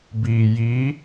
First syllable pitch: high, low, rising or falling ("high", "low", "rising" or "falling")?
low